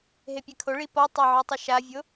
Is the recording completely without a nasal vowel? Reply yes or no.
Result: yes